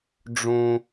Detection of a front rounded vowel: absent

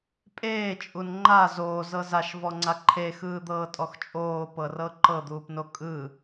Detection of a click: present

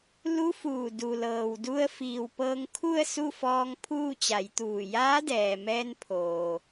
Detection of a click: absent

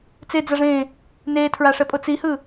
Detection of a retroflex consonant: present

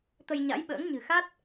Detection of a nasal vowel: absent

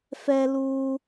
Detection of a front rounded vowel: absent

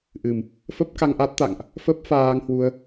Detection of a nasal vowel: absent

